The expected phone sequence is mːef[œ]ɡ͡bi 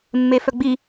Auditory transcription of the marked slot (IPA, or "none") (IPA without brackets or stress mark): œ